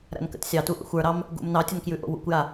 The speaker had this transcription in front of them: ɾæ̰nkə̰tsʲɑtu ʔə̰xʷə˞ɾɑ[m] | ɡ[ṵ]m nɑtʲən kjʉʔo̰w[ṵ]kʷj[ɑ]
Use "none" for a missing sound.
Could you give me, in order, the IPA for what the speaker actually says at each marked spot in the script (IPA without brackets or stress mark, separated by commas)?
m, ṵ, ṵ, a